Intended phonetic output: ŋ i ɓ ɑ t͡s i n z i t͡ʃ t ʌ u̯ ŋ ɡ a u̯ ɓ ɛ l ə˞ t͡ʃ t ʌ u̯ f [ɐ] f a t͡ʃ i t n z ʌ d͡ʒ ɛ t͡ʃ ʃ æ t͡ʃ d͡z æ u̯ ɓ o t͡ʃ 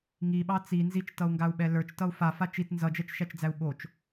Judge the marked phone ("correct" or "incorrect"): incorrect